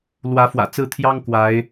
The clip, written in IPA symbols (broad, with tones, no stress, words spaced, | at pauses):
lwä˧˥fwä̰˨˩t͡sɹ̩˥˩t̪ʰjɑ˥ŋ kwa˧˥ɪ̯